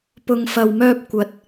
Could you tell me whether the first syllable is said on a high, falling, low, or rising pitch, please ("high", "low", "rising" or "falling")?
low